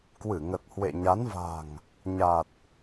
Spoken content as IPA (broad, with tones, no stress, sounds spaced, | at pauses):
k w ɨ˧˩ ŋ ə˨˩ t̚ h w ḛ˧˨ ɲ a˨˦ n v a̤˨˩ ŋ | ɲ a˨˩ t̚